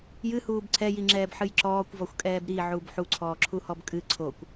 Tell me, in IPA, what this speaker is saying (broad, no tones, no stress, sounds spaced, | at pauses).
j ɨ h uː b ǀʰ ɛ j i ŋ͡ǁ ɛː b ħ ɨ j ǁ ɔː kʷ v ɔ xʷ kʼ ɛː b ɾ i ʕ u b ħ u ǀʰ ɔː ǁʰ u h ɔ b kʼ ɨ ǀʰ o kʷ